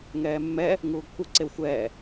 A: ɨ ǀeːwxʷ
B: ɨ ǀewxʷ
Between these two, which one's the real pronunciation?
B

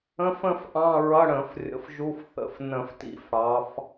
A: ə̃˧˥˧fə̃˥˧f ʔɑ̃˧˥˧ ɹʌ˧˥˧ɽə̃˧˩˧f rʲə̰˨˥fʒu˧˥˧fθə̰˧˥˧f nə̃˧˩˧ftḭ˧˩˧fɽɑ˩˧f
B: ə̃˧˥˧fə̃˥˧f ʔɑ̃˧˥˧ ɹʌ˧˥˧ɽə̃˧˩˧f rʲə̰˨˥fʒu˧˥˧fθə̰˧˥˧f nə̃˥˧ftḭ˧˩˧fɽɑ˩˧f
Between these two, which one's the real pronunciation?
A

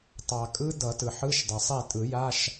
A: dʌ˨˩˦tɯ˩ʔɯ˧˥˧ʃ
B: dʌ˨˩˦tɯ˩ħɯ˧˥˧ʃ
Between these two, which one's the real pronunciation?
B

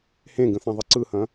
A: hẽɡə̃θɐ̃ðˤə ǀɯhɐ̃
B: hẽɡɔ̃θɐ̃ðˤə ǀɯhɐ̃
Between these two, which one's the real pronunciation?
A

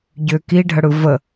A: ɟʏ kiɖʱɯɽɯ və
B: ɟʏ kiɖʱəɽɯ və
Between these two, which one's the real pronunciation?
B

